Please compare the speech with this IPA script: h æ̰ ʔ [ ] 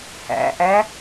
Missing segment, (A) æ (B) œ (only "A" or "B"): A